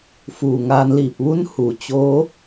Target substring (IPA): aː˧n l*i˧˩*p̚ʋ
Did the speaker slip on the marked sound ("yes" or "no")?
no